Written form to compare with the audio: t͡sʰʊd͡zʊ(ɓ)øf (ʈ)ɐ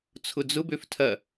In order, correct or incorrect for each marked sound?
incorrect, incorrect

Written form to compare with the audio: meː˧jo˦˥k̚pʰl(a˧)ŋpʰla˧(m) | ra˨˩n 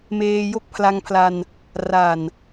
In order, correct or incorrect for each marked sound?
correct, incorrect

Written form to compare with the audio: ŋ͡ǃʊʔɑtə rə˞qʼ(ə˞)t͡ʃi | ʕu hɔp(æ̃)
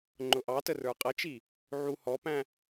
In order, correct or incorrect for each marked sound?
incorrect, correct

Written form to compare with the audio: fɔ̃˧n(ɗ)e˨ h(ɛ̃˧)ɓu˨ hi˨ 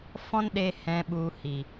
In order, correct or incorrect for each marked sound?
correct, incorrect

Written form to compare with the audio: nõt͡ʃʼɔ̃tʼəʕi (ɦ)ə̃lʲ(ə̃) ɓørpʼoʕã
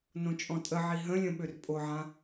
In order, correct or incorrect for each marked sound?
correct, correct

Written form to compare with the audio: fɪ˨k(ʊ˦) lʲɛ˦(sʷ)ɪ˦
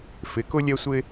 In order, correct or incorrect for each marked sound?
correct, correct

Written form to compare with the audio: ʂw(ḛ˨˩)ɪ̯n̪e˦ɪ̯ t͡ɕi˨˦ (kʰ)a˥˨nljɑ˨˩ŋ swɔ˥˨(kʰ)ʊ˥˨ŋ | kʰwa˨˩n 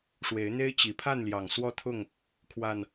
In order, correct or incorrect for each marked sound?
incorrect, incorrect, incorrect

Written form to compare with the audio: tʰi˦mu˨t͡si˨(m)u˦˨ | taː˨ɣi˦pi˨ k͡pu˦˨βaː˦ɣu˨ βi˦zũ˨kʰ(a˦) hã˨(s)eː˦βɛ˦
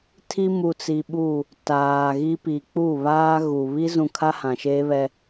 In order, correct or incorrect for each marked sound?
incorrect, correct, incorrect

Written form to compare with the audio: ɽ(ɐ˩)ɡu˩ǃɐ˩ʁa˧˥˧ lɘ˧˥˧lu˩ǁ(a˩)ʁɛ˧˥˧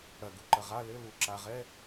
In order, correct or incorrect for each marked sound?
correct, correct

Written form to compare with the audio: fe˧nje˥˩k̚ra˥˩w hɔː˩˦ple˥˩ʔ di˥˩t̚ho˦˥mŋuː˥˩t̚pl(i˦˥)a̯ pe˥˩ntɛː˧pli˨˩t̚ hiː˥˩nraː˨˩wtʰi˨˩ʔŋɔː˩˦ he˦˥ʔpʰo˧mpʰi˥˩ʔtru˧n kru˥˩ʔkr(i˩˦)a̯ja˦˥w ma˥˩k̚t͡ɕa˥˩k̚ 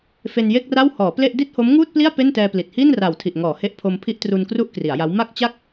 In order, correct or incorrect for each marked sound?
incorrect, correct

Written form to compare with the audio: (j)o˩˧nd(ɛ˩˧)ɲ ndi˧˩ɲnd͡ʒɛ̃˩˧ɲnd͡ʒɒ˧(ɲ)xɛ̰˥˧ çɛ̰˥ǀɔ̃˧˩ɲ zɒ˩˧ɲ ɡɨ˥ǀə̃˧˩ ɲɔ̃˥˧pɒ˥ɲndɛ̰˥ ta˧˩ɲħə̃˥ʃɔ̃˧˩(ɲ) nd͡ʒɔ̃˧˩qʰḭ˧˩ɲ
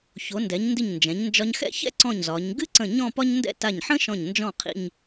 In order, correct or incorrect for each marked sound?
incorrect, correct, correct, correct

